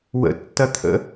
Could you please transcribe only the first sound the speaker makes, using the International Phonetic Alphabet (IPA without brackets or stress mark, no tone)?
w